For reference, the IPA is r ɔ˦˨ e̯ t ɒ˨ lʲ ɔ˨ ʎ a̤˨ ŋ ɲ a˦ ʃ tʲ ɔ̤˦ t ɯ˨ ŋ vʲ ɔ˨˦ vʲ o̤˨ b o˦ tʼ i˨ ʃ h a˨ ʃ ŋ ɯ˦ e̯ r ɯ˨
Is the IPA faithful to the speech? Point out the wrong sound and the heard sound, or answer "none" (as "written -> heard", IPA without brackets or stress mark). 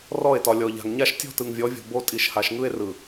none